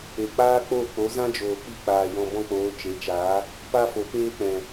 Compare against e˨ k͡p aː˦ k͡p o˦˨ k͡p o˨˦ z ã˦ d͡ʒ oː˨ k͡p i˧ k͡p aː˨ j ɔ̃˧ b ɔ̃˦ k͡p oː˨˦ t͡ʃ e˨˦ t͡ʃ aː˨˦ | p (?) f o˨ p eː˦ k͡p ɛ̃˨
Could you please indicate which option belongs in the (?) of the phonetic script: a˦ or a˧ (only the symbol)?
a˦